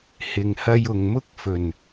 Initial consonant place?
glottal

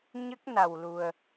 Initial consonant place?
palatal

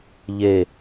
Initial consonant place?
palatal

